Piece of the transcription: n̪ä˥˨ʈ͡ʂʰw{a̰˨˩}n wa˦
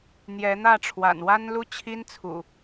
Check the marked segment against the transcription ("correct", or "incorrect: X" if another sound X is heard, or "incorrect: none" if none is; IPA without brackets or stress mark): correct